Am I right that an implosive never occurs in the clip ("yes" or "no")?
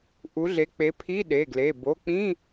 no